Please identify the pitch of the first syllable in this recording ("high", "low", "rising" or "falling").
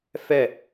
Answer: falling